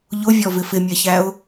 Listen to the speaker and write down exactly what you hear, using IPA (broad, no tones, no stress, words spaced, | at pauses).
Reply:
ʎʊvʲɔ vɪfɪmʲɛçæʊ̯